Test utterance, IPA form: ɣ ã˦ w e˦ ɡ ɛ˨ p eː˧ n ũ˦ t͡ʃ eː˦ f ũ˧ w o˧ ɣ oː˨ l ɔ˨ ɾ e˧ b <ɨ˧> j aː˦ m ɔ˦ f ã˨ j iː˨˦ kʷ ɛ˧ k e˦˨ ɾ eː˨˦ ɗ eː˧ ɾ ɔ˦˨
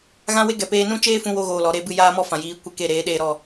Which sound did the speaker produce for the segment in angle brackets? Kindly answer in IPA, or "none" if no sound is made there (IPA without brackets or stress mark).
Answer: ɨ˧